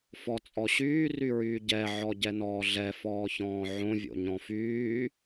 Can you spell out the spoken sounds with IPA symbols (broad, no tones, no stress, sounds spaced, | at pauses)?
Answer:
f ɔ t͡sʼ ɔ ɕ yː r y ɹ yː ɟ ɛ ʕ ɔ ɟ ɛ n ɔː ɮ ɛ f ɔː ç ɔ̃ː ʕ õ vʲ o̰ ɲ ɔ̃ f yː